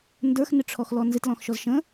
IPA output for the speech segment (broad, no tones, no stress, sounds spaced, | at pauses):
n d ə˞ x n ɪ ʈ͡ʂʰ ɔ x l ɔ n z ɪ t l ɔ̃ x ʃ ɔ z ʃ ə̃